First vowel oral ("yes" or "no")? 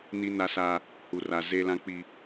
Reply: yes